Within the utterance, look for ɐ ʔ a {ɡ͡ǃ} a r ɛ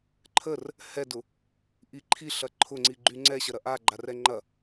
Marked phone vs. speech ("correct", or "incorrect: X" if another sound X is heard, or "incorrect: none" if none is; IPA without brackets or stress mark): correct